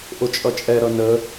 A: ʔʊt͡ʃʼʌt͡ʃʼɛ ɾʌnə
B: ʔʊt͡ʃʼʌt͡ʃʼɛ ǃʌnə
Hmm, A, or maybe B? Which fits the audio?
A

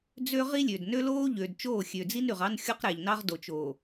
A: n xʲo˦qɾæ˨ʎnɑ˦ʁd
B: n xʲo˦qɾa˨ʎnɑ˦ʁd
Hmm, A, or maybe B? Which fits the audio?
A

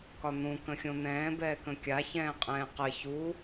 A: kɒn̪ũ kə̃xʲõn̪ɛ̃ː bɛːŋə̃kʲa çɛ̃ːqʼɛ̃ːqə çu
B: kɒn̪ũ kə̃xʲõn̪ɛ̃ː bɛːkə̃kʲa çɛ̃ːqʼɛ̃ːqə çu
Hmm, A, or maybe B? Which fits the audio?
B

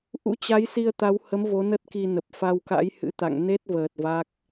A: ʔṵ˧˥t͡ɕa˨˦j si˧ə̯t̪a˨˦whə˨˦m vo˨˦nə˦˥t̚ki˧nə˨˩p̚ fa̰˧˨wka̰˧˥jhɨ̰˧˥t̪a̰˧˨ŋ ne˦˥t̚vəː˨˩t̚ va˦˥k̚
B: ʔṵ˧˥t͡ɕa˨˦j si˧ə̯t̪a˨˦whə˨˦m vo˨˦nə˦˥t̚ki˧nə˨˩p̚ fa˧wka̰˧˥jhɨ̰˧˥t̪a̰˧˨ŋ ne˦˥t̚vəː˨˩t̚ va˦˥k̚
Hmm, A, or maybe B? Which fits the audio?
B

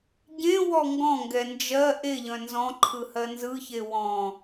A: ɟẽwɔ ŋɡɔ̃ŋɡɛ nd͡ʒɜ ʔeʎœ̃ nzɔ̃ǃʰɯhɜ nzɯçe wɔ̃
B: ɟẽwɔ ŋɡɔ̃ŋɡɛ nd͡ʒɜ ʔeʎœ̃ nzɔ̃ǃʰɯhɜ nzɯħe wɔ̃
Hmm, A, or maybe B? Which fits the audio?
A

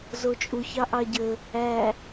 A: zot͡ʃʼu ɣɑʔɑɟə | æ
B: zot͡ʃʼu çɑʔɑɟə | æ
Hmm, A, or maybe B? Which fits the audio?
B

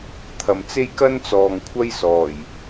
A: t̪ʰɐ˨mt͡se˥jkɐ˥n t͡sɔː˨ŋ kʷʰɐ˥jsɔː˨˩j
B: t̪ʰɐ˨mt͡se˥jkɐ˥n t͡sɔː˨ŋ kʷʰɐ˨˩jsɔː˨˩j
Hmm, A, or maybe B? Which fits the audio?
A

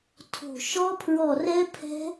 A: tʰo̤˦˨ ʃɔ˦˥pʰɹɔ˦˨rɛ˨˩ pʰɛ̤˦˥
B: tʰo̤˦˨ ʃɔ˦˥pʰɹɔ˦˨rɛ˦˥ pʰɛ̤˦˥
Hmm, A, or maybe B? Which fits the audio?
B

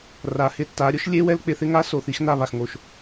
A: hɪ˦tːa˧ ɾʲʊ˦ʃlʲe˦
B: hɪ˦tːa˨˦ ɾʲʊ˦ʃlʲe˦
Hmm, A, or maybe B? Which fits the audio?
B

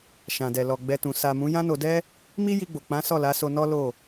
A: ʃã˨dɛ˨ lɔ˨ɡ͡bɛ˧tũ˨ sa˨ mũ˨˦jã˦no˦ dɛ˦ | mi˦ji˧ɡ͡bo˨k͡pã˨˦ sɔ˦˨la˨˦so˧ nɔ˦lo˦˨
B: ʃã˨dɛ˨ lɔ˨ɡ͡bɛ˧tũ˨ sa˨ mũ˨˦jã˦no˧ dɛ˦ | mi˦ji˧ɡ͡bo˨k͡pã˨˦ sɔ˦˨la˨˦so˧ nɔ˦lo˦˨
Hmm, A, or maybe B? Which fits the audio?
B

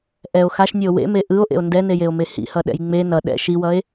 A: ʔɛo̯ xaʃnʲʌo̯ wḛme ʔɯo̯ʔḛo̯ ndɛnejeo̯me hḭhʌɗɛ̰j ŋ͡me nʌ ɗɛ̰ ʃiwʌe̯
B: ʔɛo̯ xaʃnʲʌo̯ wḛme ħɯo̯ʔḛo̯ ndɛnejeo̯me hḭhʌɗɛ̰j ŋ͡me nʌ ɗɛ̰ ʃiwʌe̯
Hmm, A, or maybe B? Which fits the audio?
A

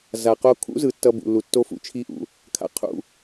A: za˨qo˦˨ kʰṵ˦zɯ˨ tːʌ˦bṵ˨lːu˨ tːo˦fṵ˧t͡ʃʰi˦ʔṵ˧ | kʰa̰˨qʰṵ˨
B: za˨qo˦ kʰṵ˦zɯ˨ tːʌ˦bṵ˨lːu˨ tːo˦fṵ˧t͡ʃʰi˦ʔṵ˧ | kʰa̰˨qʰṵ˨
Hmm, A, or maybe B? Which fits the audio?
B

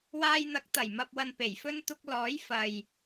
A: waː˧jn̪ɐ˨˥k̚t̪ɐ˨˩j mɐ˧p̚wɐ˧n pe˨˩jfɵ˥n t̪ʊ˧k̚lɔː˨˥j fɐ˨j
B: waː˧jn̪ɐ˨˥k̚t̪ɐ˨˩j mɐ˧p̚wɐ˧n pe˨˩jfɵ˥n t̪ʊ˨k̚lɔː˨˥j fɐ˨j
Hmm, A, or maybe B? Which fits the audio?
A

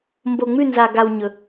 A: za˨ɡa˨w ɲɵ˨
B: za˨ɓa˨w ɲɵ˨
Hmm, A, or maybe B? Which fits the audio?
A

